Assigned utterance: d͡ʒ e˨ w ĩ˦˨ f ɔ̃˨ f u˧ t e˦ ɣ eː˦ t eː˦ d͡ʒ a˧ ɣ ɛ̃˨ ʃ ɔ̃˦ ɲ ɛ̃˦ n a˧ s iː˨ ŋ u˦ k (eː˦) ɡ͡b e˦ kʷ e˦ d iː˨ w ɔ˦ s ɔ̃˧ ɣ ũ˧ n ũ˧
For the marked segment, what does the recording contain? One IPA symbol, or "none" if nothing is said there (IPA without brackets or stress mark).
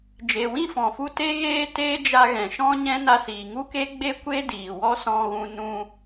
e˦